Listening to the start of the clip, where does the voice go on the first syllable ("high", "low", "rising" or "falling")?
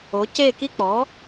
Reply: rising